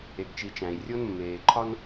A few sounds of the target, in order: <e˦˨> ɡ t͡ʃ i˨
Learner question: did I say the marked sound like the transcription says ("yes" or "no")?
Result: no